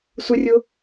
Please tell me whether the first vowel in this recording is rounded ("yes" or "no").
no